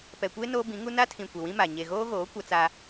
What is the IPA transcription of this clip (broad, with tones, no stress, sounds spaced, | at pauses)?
p ɛ˨ kʷ e˦ n oː˦ b ĩ˨˦ ŋ u˦ n a˦ tʰ ĩ˨ kʷ e˨ w ĩ˦ m a˨ ɲ e˨ ɣ oː˦ ɣ oː˨˦ kʷ a˦ t͡s a˦